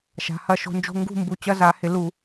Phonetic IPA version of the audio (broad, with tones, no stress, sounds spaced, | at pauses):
ʃ a̤˩˧˩ h ɐ˦˨ ʃ o̤˨˦ n d͡ʒ o̤˧˥˧ ŋ ɡ ṳ˦˨ m b u˩˧˩ t͡ɕ ɐ˧˥˧ z a˧˩˧ h ɪ˧˩˧ l u˧˩˧